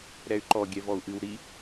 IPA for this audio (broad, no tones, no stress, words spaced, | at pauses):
ɾɛy̯ǃɔ ɡʲɛvɔu̯ʔɨw ɾi